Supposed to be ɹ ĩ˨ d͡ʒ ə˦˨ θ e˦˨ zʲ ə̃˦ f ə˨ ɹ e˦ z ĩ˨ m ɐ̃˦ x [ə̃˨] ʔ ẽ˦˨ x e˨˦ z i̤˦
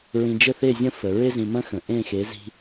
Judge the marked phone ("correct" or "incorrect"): correct